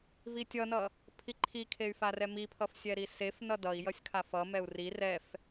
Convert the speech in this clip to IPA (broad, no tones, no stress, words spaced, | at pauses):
vitʲʌnʌ | pʰiǃʰikʰey̯ farɛmipʰʌf sʲɛɾisefnʌ dʌi̯ jʌsʲkʰafʌmɛu̯ ri rɛf